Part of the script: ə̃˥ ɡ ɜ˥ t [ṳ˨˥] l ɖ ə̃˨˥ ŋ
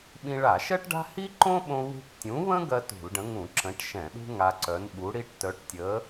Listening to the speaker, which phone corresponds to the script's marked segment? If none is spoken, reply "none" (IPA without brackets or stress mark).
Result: ṳ˧˩˧